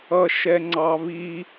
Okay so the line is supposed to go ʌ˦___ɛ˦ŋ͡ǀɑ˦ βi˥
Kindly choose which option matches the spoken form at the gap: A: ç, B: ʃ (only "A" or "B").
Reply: B